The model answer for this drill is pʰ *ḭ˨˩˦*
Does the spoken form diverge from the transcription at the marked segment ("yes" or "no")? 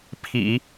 no